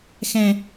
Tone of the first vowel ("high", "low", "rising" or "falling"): high